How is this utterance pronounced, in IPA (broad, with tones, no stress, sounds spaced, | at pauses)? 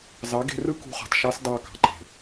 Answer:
z ɑ˨˦ ɡ e̤˧ r ɯ˦ k ṳ˧ χ ɑ̤˨ t ʃ ɑ˦ s d ɑ˧ k ɑ̤˨ ǃ e̤˨